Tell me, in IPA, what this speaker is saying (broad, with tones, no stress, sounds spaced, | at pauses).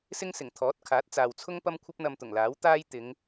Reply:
s ɪ˥ ŋ s ɪ˨˩ ŋ t̪ʰ ɔː˨˥ t̚ kʰ aː˨˥ t̚ t͡s aː˨ w t͡sʰ ʊ˥ ŋ p ɐ˥ m kʷʰ ɐ˥ p̚ n̪ ɐ˧ m t̪ ʊ˨˩ ŋ l aː˨˥ w t̪ aː˥ j t̪ ɪ˨˧ ŋ